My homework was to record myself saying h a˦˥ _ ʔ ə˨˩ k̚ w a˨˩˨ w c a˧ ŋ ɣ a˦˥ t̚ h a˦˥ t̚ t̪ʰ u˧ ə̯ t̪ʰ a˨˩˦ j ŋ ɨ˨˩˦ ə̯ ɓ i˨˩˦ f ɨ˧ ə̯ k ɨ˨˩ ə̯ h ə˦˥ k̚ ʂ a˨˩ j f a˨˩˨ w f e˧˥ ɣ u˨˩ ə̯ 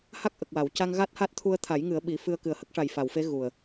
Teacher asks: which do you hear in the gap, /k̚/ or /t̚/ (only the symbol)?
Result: k̚